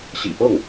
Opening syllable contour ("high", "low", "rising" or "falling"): low